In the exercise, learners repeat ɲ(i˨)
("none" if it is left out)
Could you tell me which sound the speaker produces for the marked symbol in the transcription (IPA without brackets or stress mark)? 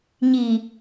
i˨